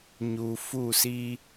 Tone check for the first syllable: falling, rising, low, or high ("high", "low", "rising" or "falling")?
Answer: low